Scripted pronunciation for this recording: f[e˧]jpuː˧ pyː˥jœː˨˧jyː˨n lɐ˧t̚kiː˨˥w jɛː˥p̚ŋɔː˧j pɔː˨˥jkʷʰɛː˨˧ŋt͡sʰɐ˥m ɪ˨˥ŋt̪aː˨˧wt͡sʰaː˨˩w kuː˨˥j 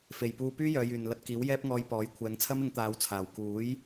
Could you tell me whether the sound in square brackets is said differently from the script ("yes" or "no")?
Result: yes